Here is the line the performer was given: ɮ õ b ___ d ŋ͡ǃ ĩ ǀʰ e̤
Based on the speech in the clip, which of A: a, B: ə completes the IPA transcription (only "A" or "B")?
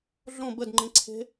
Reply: B